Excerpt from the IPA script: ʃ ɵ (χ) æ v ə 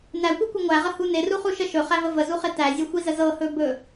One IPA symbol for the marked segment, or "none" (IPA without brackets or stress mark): χ